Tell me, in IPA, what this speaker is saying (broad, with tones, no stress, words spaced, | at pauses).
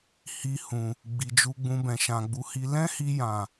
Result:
hi˧hũ˨ | ɡ͡bi˨d͡ʒu˧ɡ͡bũ˧ bɛ̃˨ʃã˨ɡ͡bu˧hi˦ lɛ̃˦hi˧jã˨